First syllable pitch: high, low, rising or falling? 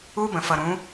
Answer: high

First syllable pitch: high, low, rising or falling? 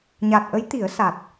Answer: low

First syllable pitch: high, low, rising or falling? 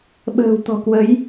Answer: low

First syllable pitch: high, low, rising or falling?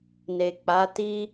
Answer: low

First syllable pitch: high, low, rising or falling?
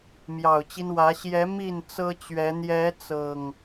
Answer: low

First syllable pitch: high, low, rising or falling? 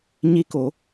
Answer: rising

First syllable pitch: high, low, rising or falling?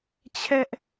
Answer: high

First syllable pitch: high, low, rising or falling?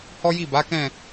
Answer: high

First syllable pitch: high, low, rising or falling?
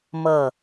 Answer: falling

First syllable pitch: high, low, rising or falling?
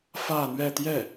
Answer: falling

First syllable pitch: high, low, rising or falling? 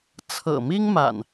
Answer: low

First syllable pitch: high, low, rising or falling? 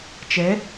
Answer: rising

